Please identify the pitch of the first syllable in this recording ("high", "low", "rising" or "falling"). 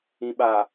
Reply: low